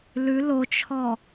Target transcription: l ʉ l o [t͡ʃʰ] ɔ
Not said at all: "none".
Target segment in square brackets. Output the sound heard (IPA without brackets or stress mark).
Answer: t͡ʃʰ